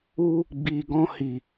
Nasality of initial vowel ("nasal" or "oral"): oral